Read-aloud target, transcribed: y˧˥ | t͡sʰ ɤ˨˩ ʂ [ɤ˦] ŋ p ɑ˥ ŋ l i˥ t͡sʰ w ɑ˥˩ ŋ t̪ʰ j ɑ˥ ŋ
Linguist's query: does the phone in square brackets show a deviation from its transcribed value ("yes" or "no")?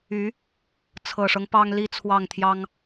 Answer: no